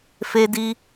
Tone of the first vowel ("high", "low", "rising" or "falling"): high